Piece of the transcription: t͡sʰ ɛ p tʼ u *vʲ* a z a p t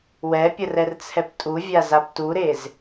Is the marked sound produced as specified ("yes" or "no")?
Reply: yes